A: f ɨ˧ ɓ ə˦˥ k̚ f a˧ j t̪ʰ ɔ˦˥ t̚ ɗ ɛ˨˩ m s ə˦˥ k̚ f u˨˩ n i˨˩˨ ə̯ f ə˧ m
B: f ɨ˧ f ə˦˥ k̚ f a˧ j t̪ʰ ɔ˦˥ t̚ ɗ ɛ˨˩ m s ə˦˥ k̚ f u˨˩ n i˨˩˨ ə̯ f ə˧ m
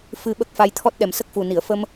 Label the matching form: A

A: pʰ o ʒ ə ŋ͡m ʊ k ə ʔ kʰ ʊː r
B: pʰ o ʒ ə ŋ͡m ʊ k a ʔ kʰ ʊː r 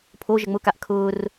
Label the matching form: B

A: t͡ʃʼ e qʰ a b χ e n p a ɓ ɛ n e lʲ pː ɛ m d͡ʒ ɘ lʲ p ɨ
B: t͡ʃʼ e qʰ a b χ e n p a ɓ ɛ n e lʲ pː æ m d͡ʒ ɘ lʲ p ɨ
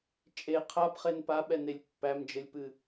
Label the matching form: B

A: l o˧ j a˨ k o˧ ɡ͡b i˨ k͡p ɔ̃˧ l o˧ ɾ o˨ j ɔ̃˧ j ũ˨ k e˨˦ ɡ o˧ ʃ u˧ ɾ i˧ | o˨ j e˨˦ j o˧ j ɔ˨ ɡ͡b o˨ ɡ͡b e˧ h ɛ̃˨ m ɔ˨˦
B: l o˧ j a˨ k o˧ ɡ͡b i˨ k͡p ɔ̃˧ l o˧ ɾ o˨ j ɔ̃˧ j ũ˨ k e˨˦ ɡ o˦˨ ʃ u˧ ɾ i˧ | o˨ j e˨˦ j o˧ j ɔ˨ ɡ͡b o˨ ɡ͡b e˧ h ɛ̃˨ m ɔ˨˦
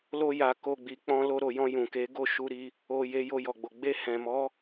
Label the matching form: B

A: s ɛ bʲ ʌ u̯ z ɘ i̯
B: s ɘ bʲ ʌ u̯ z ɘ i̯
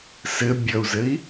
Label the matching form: B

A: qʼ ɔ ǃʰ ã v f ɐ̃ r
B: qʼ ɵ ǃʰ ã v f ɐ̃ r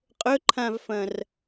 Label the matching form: B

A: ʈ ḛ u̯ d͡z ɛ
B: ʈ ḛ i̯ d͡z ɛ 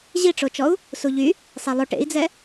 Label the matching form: B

